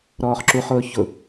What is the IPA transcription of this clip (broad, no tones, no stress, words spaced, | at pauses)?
ɾɔːχǁuχʊː çʊ